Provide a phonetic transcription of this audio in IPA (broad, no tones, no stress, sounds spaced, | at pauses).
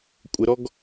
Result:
kʷʼ ɘ ɾ ɔ ɡ